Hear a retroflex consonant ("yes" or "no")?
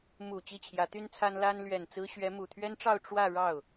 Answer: yes